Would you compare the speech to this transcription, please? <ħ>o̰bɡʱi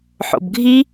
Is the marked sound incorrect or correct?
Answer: correct